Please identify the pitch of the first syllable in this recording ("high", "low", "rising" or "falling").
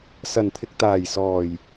low